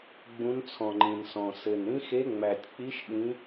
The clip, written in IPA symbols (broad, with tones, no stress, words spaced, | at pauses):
ɡ͡bũ˧˥nt͡sʰɔ̃˨˩ŋ͡ǃĩ˨˩nsɔ̃˨˩ sɘ˨˩n ɾĩ˧˥xe˧˥ ŋ͡mæ˨˩tʲk͡pi˧˥ʃ ɗĩ˧˥